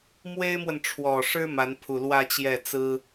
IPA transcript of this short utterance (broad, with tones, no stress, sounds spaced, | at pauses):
m w e˥ ɪ̯ m w ə˨ n ʈ͡ʂʰ w ɔ˨˩ ʂ ɻ̩˥ m a˧˥ n pʰ u˨˩ l w ä˥˧ t͡ɕ j ɛ˥˩ t͡s ɹ̩˥